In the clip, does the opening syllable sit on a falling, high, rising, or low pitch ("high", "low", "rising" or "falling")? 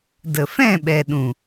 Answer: low